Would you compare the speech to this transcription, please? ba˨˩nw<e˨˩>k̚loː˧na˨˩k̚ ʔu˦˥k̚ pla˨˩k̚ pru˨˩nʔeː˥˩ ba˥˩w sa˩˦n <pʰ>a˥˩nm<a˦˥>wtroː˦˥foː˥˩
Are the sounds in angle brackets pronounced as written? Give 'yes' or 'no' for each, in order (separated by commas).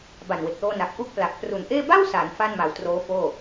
yes, no, no